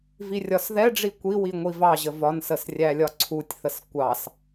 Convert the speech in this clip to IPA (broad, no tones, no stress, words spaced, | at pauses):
virʲɒsðɛɖ͡ʐi kʷiwi ŋʷivɑʑə vɒnsəs rʲælʲɒǀʰutʲθəs kʷɑs